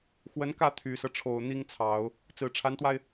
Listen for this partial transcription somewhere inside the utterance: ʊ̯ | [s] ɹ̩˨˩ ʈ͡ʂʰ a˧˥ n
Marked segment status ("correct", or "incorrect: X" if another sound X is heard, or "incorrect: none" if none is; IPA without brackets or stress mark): incorrect: t͡s